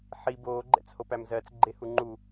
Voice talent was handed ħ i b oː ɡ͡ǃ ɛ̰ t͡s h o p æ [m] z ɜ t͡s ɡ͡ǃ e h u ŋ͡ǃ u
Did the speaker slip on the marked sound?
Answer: no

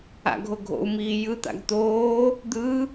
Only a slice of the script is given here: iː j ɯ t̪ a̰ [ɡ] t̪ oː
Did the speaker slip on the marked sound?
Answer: no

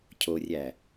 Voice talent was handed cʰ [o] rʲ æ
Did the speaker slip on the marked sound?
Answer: no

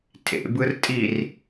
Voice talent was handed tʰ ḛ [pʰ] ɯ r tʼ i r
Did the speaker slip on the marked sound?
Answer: yes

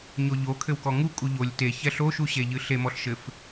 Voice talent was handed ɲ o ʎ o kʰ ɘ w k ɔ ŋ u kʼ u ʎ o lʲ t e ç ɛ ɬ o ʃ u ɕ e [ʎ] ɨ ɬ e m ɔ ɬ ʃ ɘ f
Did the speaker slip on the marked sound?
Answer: no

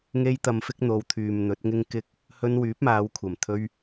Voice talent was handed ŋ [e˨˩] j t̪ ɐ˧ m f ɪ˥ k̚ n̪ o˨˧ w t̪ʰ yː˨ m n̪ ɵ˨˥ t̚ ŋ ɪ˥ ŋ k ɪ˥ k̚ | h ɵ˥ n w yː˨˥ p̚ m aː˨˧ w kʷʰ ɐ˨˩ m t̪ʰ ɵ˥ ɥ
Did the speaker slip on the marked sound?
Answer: yes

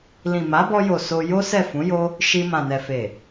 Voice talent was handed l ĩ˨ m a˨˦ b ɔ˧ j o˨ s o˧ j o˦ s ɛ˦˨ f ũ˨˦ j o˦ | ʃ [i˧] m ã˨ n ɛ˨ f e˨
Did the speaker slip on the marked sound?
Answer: no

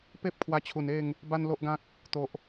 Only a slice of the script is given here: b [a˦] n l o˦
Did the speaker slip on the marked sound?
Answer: no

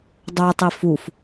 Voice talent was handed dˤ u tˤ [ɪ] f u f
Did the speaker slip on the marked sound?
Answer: yes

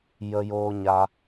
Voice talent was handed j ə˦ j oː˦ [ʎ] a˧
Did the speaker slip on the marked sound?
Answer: yes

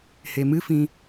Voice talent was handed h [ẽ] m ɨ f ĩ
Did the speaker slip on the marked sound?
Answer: yes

